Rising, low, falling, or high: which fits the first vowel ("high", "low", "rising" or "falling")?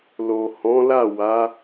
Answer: low